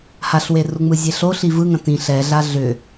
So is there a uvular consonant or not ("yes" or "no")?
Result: no